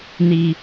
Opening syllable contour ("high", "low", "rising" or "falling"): low